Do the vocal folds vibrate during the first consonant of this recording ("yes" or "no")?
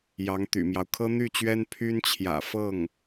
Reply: yes